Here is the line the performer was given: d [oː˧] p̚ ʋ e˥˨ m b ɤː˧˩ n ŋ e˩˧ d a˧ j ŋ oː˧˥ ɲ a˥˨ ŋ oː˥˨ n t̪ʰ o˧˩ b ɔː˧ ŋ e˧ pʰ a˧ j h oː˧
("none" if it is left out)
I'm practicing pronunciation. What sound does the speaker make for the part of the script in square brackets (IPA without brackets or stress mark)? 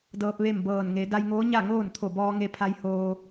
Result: ɤː˧